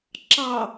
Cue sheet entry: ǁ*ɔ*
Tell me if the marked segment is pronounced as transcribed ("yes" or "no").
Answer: no